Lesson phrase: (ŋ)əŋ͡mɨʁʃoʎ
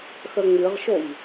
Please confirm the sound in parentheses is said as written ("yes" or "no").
no